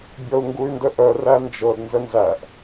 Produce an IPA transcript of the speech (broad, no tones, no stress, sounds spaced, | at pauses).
bʲ ɔ u̯ ŋ ɡ u y̯ n d ə ʔ œ r æ n d͡ʒ ɤ d n z ə n z æ ʔ